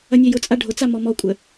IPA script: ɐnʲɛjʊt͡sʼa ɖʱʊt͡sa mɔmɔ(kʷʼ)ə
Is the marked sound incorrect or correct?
correct